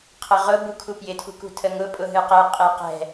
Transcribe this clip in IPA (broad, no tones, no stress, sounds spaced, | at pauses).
qʰ ə ʁ ʊ b u kʰ u p j ɪ tʰ ṳ k ṳ tʰ ə ŋ ʊ pʼ ʊ ɦ ɨ q ɛ qʼ e q ɛ̤